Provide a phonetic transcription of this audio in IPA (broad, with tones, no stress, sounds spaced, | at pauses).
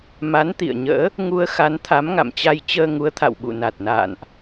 m a˨˦ n t̪ ḭ˧˨ ə̯ ɲ ə̰ː˧˥ | ŋ u˧ ə̯ x a˨˦ n t̪ʰ a˨˦ m ŋ a̰˧˨ m t͡ɕ a˧ j t͡ɕ əː˧ ŋ u˨˦ ə̯ t̪ʰ a̰˧˨ w ɓ ṵ˧˨ n a˨˩ t̚ n a̰ː˧˨ n ʔ